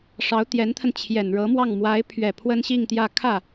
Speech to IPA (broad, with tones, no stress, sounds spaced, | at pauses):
ʂ ɑ˧˥ ʊ̯ t̪ j ɛ˧˥ n t̪ʰ ə˧ n t͡ɕʰ j ɛ˨˩ n ɻ ɤ˧˥ m w ɑ˥˩ ŋ m w a˧˥ ɪ̯ pʰ ɥ ɛ˨˩ pʰ w ə˥ n ɕ i˥˧ ŋ t̪ j ä˥˧ kʰ ä˥˩